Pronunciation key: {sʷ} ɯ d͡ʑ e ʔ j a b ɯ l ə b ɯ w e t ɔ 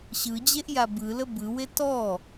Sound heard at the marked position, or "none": ɕ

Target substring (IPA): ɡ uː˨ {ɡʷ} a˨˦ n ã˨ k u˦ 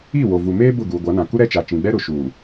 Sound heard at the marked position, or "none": ɡʷ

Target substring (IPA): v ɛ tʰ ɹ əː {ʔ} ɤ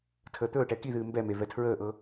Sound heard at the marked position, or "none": ʔ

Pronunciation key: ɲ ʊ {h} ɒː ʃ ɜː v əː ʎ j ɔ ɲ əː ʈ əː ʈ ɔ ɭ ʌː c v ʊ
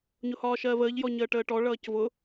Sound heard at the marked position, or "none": h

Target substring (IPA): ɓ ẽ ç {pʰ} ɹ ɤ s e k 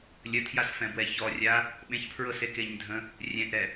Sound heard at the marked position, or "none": pʰ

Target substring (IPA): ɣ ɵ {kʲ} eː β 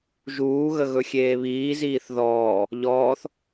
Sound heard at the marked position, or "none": xʲ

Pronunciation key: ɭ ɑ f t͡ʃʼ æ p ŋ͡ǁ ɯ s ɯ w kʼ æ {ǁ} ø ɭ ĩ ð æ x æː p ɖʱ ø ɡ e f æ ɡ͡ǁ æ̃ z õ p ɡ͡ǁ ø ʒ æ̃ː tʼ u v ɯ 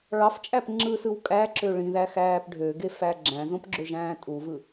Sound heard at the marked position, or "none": ǁ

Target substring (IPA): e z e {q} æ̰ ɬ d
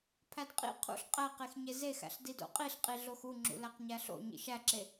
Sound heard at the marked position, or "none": x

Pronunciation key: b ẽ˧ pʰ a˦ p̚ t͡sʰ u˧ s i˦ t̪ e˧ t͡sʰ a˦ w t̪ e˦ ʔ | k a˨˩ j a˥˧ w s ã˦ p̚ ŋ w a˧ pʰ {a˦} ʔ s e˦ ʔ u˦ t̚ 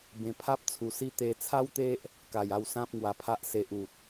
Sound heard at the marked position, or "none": a˦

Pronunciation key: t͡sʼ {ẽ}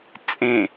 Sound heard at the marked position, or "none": ẽ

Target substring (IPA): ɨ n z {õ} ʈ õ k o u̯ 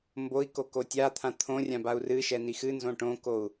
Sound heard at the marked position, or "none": õ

